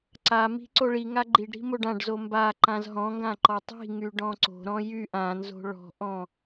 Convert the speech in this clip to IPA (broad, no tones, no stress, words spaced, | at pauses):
ǀami̤ ǀoɭiŋa ɡ͡ǃiɖɾi̤ moɖãɖzo mba ǃãzɦɔ̃ŋɡã ǃɔtˤi̤ŋy ɖɔ̃ǀo̤ɾɔ̃ jy ʔãnzo̤ ɭɔ̤ʔɔ̃